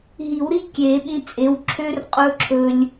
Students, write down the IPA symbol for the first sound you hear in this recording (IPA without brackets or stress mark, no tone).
ɦ